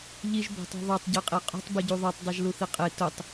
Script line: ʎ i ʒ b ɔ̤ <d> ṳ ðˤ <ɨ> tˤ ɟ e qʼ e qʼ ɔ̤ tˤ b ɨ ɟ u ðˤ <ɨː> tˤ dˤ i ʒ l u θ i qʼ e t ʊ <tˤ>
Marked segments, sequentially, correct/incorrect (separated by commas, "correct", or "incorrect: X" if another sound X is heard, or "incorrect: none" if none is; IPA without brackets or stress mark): incorrect: tˤ, incorrect: e, incorrect: ɨ, correct